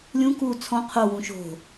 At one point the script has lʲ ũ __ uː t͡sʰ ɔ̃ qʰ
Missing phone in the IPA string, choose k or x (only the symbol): k